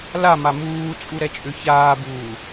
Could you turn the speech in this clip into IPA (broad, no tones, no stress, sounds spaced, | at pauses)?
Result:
l a m a m uː t͡sʼ u ɾ ɛ t͡ʃʼ ʏ ç aː b uː